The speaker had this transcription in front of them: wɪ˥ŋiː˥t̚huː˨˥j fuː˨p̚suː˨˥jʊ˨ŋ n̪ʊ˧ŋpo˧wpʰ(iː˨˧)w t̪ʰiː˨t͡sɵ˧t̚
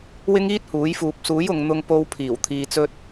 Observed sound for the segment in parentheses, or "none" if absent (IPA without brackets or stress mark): iː˨˩